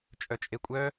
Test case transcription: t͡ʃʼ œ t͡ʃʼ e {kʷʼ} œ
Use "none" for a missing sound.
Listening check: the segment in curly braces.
kʷʼ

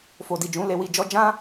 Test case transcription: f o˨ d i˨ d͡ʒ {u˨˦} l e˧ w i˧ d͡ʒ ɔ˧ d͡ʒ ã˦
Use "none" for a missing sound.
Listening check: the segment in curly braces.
ũ˨˦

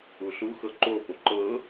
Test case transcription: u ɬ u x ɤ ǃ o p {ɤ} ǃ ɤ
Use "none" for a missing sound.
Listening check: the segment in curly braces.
o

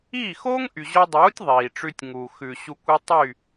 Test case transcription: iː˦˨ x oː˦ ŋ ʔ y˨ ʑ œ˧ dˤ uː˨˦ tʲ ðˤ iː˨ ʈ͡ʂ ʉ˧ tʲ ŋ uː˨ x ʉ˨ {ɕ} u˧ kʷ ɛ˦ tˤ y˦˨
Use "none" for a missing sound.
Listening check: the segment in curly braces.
ɕ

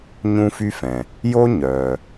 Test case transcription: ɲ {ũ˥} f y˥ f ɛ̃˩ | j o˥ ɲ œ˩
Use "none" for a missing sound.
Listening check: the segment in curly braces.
ũ˥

